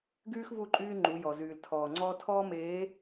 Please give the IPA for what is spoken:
ɡyː˦xvu˦˨ǃʼyː˦ ŋ͡ǃu˨˦jɔ˨zyː˨l tʰɔː˨ŋ͡ǀɔː˦ tʰɔː˦meː˨˦

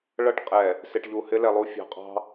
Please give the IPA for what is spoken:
ɭʌ˦ʈqʼɛ˨ | sɪ˨ʈʎu˨ hɪ˦lɛ˨lˠu˦ fʲɑ̤˨qʼɑ̤˦

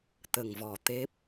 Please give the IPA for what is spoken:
t̪ə˨˩ŋvɔ˨˩ t̪e˦˥p̚

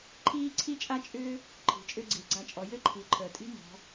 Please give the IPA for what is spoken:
ǃʰiː˥ǀʰi˥t͡ʃʼa˥t͡ʃʼʏː˥ | ǃʰi̤˩˧t͡ʃʼʏ˥ɡ͡ǀi˩˧ ɡ͡ǀa˧t͡ʃʼɔ˩˧ jɘ˥ǃʰi˩˧ǃʰəː˩tʼi̤˥ mɔ̤˩˧

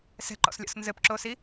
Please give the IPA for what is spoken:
sɛ̤ǃɔ̰slʲɔ̰s nzɘpǁosi

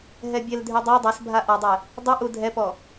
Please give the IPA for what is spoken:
ɦɛbʲɛldʱy dˤo dˤasbʱa ʔɔdˤɛ | dˤuʔu dʱɛpɔ

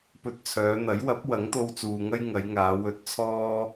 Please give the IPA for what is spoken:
pɵ˧t̚t͡sʰœː˨˧n̪ɐ˨˥j wɐ˨˥p̚ wɐ˨˥ŋt̪o˧wt͡suː˨ŋɐ˥j ŋɐ˨˧jŋaː˨˧ wɵ˧t̚t͡sʰɔː˥

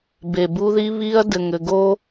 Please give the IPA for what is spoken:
be˨bu˦ði˦ βi˦ɐ̯ dɘ˨ŋ ɘ˨ɡo˦

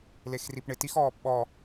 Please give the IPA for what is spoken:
lexripɳɪtix ɔːpɓɔ

